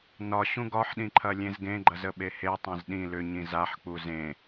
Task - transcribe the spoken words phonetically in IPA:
n ɒ ɕ ũ ɡ ɒ ħ ɗ ĩ ǃʰ ɐ lʲ ẽ z ɡ ẽ ɡ͡ǃ ɐ z ə ɓ e h e tˤ ẽ z ɗ ĩ l ʏ ɲ ĩ z a ħ k͡p u z ẽ

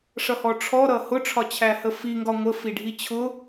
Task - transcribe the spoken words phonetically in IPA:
ʂ ʌ h ɔ ʈ͡ʂʰ ɔ ɾ ʌ h ʊ ʈ͡ʂʰ ɒ t͡ɕʰ æ h ə f i ŋ ɡ ɒ ŋʷ ə f i ɖʱ i t͡ɕʰ ʊ

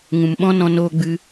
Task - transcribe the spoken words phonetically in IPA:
ŋ ũ˨ m ɓ ɔ̃˦ n ɔ̃˧ n oː˧ ɡ͡b ɨ˧

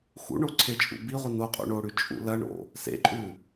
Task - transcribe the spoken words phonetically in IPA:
x ṵ ɳ o ǀʰ e t͡ʃʼ ṵ b i ʁʷ i n o qʼ ṵ ɳ o ɽ ʉ t͡ʃʼ ṵ l ɐ ɳ o̰ | s ḛ ǃʼ ʉ

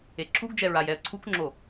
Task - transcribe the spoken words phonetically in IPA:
e ǁʰ u ɡ d͡ʒ ɛ ɹ a j ɛ ə̯ ǀʰ u k ŋ͡ǁ o

